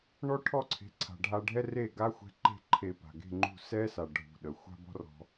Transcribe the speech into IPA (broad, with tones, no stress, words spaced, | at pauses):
ɳɔ˥ʈʰɔ˥˩ǀʰe̤˩˥ǀʰa̤˩ ɖʱa˧ɖʱɛ˥reː˥˩ ɡa˥xʷɛ̤˧ǃe̤˥˩ ǃʰe˧ pa̤˩ɡe̤˥˩ŋ͡ǃṳ˥˩ sɛː˥sa˩ ɖʱṳ˩ ɗə˩ xʷa̤˥bɔ̤˥rɔ̤˧